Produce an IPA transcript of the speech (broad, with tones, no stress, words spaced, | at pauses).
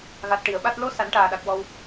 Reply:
ɣa˨˩t̚ʈi˨˩˨ə̯ɓa˦˥t̚ lo˧˥ sa˨˩˦nʈaː˨˩ɗa˨˩k̚ wɔ˧w